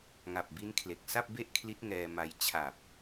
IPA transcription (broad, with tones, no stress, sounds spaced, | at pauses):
ŋ a˨˩ p̚ b i˦˥ n kʰ l e˨˩ k̚ s a˥˩ p̚ b e˥˩ ʔ kʰ l i˦˥ t̚ ŋ ɛː˧ m a˧ j t͡ɕʰ a˨˩ p̚